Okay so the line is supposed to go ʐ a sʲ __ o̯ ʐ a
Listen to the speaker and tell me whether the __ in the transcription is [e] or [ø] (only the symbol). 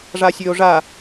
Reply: ø